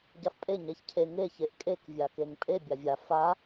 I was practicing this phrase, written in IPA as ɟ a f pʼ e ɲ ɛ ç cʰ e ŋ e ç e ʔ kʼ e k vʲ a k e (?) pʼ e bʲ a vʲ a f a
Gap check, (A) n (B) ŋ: B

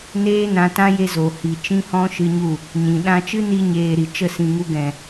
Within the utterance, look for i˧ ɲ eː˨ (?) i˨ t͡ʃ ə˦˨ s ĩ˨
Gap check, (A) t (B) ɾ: B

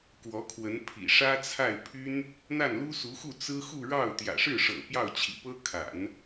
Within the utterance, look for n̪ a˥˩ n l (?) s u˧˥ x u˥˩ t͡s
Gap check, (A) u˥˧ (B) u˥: B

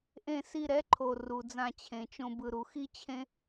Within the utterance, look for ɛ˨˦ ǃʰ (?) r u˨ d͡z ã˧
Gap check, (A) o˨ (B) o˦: A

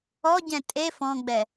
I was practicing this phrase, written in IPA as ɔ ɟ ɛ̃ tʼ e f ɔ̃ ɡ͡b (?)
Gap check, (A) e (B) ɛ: B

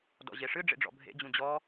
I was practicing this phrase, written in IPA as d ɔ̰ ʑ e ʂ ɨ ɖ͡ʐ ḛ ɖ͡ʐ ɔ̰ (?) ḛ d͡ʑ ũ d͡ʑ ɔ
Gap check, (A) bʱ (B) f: A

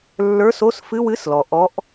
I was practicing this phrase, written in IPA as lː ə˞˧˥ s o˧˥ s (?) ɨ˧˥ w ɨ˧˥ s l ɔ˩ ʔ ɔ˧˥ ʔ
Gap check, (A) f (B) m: A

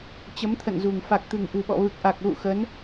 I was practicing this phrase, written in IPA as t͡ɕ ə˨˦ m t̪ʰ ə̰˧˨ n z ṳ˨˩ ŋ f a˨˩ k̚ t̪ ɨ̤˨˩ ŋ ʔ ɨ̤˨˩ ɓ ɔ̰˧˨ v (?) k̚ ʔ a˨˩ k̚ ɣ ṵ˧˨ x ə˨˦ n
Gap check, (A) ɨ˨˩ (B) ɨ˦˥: A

